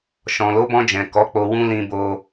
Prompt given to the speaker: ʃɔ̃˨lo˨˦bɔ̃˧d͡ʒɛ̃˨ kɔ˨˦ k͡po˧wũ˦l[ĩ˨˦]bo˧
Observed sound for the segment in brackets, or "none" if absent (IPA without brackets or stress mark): ĩ˧